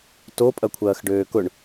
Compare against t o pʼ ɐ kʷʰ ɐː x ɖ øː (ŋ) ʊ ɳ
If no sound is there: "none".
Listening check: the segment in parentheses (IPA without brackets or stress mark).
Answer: k